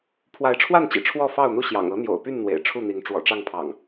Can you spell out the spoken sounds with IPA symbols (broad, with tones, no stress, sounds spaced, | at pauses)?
pʰ w a˨˦ ɪ̯ ʈ͡ʂʰ w a˥˨ n t͡ɕ ḭ˨˩ ʈ͡ʂʰ w ɔ˥˨ f ɑ˥˨ ʊ̯ n̪ u˥˨ ɕ j ɑ̰˨˩ ŋ ɤ˨˦ n̪ j o̰˨˩ ʊ̯ p y˥˨ n n̪ w ḛ˨˩ ɪ̯ ʈ͡ʂʰ u˥˨ n̪ i˨˦ ŋ ʈ͡ʂ w ɔ̰˨˩ ʈ͡ʂ ɑ˥˨ ŋ pʰ ɑ̰˨˩ ŋ